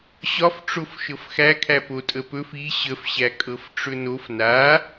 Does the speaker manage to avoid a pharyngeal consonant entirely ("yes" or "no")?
yes